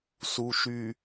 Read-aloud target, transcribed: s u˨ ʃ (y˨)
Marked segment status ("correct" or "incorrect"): correct